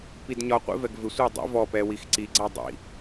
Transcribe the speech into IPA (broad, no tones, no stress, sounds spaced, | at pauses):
p i d ɲ ɒ qʷ ḭ v ɛ ɡ v ɪ sʷ ɪ w dˤ ḭ v ɔ p ɛ w i x ǀ i ɡ͡ǀ æ dˤ ḭ